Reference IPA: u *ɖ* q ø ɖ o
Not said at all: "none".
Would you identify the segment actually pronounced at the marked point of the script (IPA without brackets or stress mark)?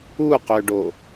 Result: none